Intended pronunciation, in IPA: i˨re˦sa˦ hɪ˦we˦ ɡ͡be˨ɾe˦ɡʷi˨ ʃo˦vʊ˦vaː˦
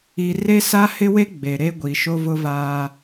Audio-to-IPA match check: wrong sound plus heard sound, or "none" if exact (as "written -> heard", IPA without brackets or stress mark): none